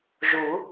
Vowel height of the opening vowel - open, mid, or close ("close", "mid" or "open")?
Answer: close